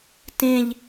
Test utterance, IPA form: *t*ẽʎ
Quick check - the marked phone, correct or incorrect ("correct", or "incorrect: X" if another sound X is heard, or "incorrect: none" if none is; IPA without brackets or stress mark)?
correct